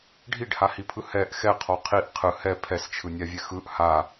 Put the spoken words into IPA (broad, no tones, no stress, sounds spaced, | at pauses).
ɖʱ i ɖ h a h i pʰ ɯ h ɛ ʔ x ɛ qʰ ɔ qʰ i ʔ qʰ ɯ h ɛ pʰ ɛ s t͡ʃʰ ɯ nʲ a vʲ ɛ x ɯ ʔ h a